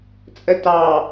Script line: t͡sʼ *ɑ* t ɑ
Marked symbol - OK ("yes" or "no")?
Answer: no